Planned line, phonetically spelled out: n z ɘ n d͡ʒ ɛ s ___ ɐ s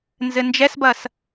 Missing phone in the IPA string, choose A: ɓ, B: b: B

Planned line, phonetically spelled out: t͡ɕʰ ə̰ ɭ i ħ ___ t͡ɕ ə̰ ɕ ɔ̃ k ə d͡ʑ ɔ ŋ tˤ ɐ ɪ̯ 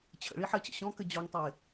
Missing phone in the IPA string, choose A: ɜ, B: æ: A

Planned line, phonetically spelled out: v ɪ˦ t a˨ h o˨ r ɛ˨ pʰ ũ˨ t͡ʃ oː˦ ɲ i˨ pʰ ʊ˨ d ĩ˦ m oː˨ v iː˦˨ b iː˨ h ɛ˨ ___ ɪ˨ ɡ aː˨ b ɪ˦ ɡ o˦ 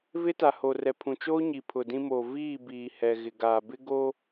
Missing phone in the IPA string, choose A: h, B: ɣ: B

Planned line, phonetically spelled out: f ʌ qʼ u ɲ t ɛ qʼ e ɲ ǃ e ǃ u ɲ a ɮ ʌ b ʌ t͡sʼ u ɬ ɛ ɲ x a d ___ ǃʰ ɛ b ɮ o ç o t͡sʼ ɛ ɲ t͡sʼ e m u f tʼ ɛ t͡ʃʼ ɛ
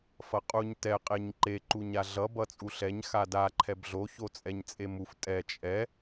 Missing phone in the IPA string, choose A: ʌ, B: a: B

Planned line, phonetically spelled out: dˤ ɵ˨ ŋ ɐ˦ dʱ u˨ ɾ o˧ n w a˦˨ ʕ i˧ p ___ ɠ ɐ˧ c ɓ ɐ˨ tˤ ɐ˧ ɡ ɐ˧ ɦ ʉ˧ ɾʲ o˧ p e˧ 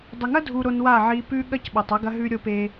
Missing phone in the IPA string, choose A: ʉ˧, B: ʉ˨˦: A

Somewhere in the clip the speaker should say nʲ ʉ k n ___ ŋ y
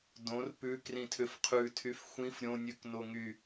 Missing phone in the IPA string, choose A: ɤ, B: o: B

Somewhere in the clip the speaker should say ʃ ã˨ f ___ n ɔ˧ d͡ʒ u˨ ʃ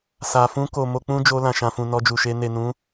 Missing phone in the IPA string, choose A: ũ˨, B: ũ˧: A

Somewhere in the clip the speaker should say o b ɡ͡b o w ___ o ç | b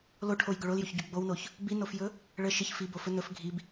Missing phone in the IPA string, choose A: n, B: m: A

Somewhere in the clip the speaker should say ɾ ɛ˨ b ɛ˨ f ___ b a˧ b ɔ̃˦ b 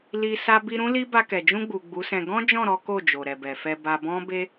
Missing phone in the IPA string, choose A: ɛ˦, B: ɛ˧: B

